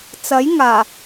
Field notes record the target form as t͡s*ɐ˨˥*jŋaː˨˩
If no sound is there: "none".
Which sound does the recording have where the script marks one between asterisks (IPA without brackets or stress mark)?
ɐ˨˥